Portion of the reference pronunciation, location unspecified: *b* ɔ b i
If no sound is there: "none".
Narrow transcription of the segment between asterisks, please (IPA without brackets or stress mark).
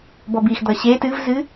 b